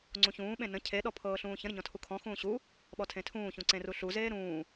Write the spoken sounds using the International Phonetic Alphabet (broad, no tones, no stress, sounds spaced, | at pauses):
ŋ͡ǀ ũ ç ũː ɓ ẽ n ə̃ cʰ e ɗ ɔ pʰ ɤː ɬ ũː ç ə̃ ɾ ə ɲ ɔ̃ tʰ u kʰ ɔ̃ x ũː ɕ u | ɓ ɔ tʰ ẽ tʰ ũː ç ũ ǀ ẽ r u ɬ u z eː ɾ ũː